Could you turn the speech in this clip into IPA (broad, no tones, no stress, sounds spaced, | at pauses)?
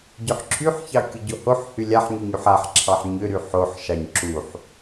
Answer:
ɟ ʏ ħ ǁʰ y ħ ç ɑ kʲ u ɟ o h o ħ h y lʲ a ħ ɲ y ɲ u ħ a ħ ǁʰ ɑ ħ ɲ ʏ ɾ y ħ o ħ ʃ ɑ ɲ ǁ u ħ